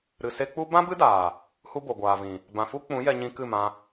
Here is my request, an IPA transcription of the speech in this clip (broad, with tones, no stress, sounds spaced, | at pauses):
ɾ ɨ˨ s e˧ k͡p u˦ b ã˦ b ɨ˦ d aː˨ | h u˦ b o˨ ɡʷ aː˨ v ĩ˨ | b ã˨ f u˦ k͡p ũ˨˦ j ɛ˧ ɲ ĩ˧ k ɨ˦˨ m ã˧